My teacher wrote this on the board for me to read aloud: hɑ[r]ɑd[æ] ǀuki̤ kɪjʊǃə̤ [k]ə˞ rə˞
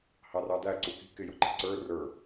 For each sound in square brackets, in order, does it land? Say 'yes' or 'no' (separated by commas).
yes, yes, no